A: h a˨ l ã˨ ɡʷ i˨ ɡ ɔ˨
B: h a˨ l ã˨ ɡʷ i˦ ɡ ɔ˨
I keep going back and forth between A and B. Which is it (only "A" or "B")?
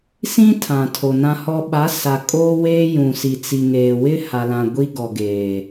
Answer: B